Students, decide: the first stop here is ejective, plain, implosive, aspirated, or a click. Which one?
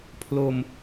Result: aspirated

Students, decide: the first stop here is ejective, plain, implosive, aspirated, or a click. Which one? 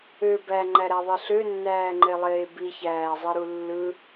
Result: plain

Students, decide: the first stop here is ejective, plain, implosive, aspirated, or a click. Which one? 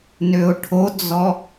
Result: aspirated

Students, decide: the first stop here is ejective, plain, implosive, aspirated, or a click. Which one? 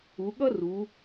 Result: implosive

